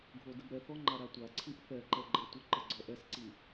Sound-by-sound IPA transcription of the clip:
ɡʱodəbɾɛθɔ ŋ͡ǃaɾatʷaǀʰiʔ θɛǃɛ ɡ͡ǃɜtʷəǃə ɡ͡ǀɔʔɛsǀi

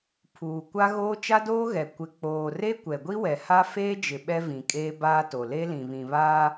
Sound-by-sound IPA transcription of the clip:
pʰuː˨ kʷa˦ɣoː˦ t͡ʃa˦doː˦ ɣɛ˨ kʷɪ˨k͡poː˨ re˦ kʷɛ˨ɡʷi˦wɛ˨ha˦ feː˦d͡ʒɪ˨ ɓɛ˦ vĩ˨ kʼeː˦baː˦ to˨ le˦lĩ˨βĩ˨βaː˦

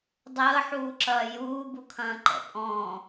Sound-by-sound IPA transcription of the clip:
dˤəːħuːǁɐː juːbukʰɐ̃ːǃɛ̰ pʼɔ̃

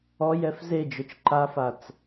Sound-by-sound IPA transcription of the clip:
ɔjɛf zed͡ʒot͡ʃ ǃafat͡s

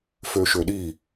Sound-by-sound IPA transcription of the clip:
føʃøɗi

